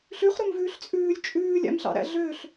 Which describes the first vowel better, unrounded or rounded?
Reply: rounded